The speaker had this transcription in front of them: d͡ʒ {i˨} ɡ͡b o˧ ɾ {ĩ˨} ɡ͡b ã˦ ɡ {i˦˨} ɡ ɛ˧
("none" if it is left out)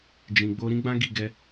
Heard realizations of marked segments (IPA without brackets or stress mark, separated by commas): ĩ˨, ĩ˦, i˦˨